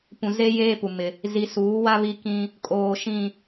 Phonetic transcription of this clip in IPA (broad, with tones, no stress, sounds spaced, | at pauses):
p ũ˨ z e˦ j eː˦ p u˨ m ɪ˦ | z i˨ s uː˨˦ w a˦ β i˦ k ĩ˦ | kʼ oː˨ ʃ ĩ˨